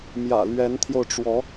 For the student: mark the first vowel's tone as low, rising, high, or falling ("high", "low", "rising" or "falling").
low